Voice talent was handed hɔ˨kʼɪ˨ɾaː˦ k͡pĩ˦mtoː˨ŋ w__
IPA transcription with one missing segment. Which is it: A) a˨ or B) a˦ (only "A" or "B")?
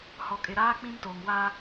B